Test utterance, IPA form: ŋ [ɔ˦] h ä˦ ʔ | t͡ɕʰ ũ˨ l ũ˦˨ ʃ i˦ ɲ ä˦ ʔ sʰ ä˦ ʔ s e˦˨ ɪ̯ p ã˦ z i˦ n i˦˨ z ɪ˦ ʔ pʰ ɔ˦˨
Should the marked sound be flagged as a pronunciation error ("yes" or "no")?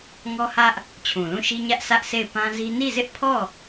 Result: no